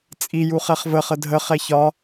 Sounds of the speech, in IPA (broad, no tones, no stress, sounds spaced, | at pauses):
t͡sʼ i j u χ ɛ χ v ə χ ə dʱ ə χ ɛ ç ɒ